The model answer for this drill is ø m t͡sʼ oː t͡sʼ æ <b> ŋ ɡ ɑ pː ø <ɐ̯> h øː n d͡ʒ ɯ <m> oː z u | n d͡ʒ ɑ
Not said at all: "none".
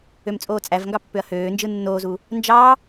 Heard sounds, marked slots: v, ɐ̯, nː

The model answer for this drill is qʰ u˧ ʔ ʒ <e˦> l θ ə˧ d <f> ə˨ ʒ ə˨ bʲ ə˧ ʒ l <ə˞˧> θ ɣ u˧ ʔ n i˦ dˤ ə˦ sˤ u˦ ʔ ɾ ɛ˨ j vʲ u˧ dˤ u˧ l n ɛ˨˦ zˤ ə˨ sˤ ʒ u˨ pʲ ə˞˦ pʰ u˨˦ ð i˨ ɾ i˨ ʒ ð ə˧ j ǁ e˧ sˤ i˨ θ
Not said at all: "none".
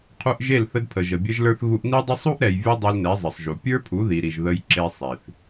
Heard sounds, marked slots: e˦˨, pʰ, ə˞˧

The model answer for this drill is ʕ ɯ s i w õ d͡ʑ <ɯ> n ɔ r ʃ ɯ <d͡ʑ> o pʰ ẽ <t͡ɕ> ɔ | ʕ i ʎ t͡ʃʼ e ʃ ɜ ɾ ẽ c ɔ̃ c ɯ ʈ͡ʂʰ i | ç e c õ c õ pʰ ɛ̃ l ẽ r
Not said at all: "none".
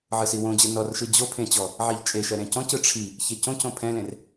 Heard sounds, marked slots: ɯ, d͡ʑ, t͡ɕ

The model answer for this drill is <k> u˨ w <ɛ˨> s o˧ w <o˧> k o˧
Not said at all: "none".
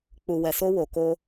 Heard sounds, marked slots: k͡p, ɛ˨, o˨

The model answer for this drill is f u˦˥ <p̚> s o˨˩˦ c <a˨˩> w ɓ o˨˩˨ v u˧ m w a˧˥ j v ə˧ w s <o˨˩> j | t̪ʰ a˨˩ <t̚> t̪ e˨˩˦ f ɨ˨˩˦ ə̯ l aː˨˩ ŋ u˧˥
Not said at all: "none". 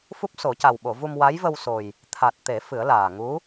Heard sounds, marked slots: p̚, a˨˩, o˨˩, t̚

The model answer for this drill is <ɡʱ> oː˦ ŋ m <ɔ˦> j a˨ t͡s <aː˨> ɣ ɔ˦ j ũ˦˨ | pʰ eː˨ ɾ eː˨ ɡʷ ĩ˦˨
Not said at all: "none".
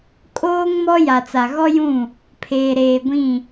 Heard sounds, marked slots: kʼ, ɔ˦, a˨

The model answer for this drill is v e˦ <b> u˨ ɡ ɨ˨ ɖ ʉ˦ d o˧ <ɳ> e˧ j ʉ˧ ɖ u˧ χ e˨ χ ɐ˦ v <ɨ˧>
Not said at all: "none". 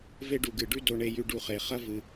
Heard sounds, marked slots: ɖ, ɳ, ɨ˧

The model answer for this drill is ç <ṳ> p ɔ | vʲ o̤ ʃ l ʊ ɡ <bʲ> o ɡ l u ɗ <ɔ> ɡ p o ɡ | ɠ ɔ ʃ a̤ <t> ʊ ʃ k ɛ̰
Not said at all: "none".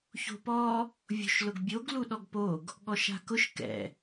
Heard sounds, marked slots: o̤, bʲ, ɔ, k

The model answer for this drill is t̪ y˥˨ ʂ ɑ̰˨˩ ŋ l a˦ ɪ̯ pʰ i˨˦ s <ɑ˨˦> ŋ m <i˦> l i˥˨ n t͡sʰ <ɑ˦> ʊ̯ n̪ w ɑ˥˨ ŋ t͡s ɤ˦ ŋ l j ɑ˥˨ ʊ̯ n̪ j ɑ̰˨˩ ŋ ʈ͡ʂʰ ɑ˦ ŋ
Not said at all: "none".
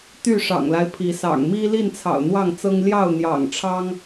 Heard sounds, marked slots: ɑ̰˨˩, i˦, ɑ̰˨˩

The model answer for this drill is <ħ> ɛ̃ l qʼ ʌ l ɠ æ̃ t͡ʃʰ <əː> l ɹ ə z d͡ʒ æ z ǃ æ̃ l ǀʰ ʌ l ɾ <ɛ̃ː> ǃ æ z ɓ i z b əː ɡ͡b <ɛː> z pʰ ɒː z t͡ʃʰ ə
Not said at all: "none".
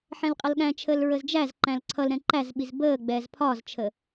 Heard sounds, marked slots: ħ, əː, ɛ̃, ɛː

